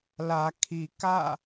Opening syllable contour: low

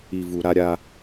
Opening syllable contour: low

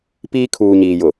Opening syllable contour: high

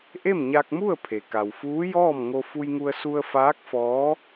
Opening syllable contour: falling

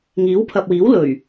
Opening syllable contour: rising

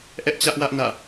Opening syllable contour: high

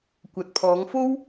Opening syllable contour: low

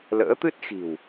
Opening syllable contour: rising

